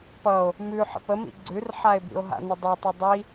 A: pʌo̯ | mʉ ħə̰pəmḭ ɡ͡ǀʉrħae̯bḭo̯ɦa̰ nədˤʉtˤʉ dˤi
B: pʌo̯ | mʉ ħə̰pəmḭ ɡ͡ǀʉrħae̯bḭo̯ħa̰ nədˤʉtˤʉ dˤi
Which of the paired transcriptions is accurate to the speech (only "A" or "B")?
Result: A